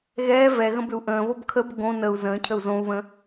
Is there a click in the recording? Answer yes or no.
no